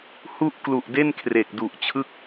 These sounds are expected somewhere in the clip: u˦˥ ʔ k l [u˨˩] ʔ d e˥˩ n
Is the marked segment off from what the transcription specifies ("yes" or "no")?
no